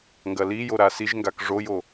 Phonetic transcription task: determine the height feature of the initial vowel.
low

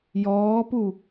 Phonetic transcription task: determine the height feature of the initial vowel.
mid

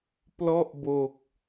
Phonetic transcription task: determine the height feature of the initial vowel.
mid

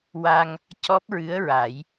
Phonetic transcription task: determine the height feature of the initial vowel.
low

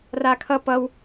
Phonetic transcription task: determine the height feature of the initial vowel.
low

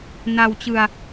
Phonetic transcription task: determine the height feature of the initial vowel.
low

